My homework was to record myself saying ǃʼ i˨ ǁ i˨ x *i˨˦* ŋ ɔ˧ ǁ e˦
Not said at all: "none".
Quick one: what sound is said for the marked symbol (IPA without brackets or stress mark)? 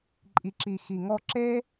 i˨